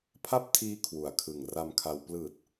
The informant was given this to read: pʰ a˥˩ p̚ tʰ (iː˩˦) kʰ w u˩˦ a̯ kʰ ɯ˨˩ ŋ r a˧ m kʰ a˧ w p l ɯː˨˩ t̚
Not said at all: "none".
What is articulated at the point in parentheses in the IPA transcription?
iː˦˥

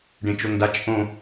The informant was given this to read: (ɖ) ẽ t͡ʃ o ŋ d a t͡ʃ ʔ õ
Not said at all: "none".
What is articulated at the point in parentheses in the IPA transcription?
ɖ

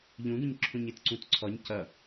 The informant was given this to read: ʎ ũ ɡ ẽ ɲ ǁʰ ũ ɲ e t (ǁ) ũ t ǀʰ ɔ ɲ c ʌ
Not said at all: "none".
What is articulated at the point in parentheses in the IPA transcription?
ǀ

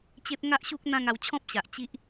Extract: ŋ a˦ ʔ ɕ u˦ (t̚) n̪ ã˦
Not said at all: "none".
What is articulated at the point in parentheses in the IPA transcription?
k̚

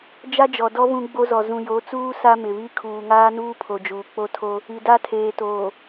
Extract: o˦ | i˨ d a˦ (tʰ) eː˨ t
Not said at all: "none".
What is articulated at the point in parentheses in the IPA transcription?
tʰ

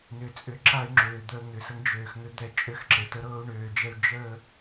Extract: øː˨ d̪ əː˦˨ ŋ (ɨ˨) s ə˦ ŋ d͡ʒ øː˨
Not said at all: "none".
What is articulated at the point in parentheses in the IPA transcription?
ʏ˨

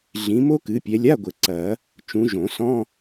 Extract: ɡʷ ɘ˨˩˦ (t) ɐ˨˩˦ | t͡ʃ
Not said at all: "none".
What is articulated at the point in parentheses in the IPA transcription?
ǀ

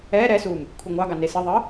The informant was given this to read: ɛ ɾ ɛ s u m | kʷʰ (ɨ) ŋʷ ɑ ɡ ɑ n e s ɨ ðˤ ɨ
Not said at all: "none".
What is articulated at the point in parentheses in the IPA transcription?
ɨ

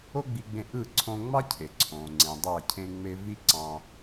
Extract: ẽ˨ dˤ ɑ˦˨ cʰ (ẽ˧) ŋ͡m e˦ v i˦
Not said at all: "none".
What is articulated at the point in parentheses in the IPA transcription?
ẽ˦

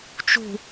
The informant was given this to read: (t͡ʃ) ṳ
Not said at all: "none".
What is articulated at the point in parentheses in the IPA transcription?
t͡ʃ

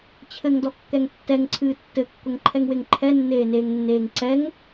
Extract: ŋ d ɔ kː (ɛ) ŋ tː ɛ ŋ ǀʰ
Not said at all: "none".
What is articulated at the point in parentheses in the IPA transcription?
ɛ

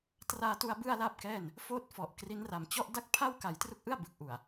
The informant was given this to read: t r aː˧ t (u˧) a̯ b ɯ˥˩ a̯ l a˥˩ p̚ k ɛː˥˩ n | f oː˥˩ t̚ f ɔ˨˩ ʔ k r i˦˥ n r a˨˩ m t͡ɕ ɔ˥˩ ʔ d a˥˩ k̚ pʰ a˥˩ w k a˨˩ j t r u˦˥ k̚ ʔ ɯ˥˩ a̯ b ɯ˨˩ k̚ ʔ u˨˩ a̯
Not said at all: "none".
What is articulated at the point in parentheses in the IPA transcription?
u˧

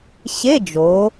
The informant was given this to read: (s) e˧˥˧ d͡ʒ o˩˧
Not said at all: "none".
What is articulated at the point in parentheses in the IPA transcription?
ɕ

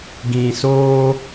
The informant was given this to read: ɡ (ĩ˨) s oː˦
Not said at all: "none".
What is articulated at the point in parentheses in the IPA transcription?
ĩ˨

